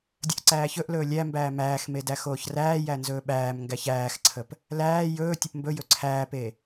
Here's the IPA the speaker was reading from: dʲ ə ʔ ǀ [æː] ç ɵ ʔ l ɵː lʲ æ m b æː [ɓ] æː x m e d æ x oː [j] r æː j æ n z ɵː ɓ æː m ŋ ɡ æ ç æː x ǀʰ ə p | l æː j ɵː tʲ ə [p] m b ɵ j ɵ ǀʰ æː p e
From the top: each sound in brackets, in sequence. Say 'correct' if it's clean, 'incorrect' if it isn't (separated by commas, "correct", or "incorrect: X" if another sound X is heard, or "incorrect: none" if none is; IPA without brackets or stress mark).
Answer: correct, incorrect: m, incorrect: ç, correct